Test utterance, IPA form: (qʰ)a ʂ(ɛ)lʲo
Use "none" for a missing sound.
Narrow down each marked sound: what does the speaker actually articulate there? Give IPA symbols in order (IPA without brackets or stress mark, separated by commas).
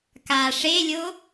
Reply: k, e